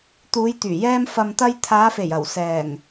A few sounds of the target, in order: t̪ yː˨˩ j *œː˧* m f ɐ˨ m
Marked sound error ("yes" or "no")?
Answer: yes